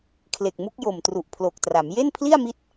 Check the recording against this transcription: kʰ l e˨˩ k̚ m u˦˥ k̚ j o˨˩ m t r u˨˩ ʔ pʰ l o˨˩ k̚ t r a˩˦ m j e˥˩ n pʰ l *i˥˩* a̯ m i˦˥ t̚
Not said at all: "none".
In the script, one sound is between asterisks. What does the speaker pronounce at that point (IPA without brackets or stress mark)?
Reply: i˥˩